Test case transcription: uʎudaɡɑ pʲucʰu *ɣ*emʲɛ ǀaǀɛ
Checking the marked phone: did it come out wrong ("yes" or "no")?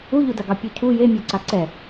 yes